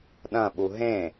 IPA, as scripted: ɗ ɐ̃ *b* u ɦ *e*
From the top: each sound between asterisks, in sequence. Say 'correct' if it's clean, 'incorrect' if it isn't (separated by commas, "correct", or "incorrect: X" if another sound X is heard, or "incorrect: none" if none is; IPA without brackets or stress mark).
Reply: incorrect: ɓ, incorrect: ẽ